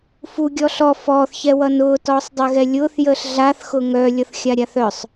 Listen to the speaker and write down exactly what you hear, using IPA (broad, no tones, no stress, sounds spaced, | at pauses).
f u ɡʲ ɔ ɬ ɔ f ɔː θ ç ɛ w ʌ n ʊː t ɔː sˤ dˤ ɛ ɣ ɛ lʲ ʊː θ j əː ɬ ɮ a θ x ʊ ŋ œ lʲ ʌ θ xʲ a ɾʲ a θ œ sˤ